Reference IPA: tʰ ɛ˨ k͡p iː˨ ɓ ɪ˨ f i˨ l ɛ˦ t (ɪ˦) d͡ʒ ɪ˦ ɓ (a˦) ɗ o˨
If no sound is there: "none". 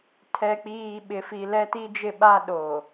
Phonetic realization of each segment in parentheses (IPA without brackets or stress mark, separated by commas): i˦, a˦